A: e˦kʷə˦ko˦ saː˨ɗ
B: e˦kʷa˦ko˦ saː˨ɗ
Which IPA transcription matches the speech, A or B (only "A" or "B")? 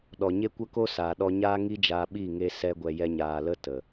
A